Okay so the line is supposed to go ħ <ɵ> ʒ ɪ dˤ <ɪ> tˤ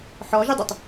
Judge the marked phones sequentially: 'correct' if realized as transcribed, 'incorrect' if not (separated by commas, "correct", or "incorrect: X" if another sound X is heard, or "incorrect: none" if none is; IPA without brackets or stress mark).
incorrect: ɔ, correct